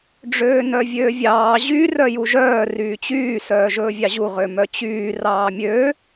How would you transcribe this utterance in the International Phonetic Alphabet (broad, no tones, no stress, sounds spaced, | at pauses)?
ɖ͡ʐ øː n œ vʲ øː vʲ ɑː ʑ y r œ j u ʒ œː r yː t͡ɕ yː s œː ʒ ɵː vʲ ɑ ʑ u ʁ ø m œ t͡ɕ yː r ɑː mʲ ø